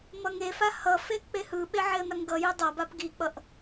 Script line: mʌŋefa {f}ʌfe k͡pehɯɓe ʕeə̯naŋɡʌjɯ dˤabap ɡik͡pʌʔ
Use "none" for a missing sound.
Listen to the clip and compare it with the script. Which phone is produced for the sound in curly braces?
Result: h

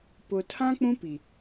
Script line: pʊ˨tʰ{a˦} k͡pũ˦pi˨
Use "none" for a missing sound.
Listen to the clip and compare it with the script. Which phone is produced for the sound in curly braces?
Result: ã˦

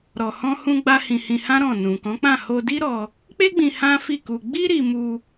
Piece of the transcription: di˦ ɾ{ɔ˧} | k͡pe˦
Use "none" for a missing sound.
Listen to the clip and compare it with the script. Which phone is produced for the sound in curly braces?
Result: ɔ˧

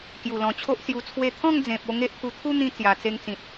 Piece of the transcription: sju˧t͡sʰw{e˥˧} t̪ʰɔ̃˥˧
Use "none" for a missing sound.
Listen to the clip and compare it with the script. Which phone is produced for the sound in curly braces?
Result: e˥˧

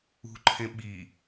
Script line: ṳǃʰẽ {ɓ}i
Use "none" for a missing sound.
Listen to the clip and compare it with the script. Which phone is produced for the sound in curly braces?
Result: ɓ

